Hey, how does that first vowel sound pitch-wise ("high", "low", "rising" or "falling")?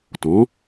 rising